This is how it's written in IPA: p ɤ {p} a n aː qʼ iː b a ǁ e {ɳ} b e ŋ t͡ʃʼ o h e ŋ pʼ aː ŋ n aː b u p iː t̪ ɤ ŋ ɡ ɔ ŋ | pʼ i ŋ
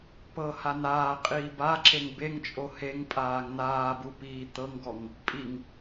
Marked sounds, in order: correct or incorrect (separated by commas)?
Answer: incorrect, incorrect